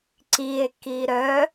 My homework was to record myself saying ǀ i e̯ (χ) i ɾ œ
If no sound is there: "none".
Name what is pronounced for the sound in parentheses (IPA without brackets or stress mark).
k